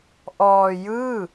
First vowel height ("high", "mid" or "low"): mid